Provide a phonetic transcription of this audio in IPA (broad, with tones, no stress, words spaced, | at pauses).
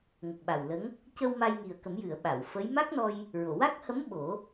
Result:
ŋə˨˩k̚ɓa˨˩wlə˧˥ŋ | cə˧w ma˧jŋi˨˩ə̯kə˨˩˦mjɨ˨˩˨ə̯ ɓa˨˩˨wfə˧˥j ma˦˥k̚nɔ˧j | ɹo˨˩˨wa˦˥k̚ hə˧˥m ɓo˨˩˦